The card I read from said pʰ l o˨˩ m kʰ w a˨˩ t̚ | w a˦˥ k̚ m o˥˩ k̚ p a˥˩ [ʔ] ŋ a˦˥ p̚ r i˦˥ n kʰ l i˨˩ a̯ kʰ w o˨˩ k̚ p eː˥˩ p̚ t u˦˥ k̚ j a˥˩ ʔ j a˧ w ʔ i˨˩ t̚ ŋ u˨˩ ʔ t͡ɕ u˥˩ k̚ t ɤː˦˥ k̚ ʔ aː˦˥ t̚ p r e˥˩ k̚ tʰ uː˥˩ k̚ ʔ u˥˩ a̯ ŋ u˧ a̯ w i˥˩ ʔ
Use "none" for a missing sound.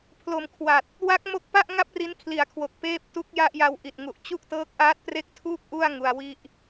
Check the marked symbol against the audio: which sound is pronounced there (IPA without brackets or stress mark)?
ʔ